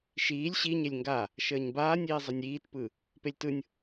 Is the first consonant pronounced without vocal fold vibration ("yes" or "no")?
yes